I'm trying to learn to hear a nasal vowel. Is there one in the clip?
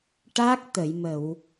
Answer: no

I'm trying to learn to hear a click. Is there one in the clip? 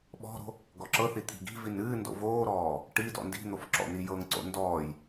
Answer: yes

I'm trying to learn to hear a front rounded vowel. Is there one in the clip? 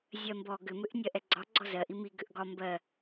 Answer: yes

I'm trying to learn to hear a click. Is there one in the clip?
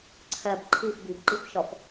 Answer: yes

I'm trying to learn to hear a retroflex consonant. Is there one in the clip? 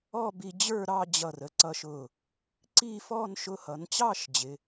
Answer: no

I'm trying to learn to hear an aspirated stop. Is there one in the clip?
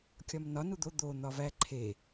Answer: yes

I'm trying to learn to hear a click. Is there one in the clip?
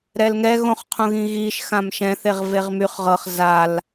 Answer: no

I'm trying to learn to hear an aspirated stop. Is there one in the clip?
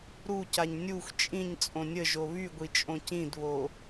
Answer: no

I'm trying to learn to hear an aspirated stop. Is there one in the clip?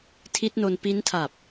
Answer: yes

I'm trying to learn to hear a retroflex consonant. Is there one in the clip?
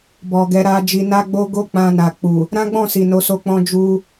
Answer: no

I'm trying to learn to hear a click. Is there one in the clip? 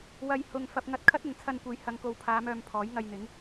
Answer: no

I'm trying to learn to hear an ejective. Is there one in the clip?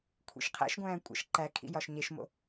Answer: yes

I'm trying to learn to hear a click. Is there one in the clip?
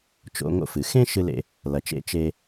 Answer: no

